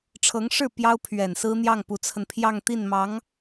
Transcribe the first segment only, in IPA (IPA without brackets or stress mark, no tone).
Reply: ʈ͡ʂʰ